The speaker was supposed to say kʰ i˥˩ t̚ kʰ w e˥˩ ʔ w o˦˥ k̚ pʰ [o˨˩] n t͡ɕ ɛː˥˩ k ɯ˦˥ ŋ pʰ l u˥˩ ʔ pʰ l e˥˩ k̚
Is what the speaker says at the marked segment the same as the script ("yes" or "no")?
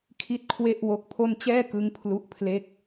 no